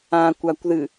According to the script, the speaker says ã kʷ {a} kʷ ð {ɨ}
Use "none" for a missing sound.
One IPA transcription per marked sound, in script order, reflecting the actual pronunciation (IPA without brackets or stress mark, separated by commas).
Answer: a, ɨ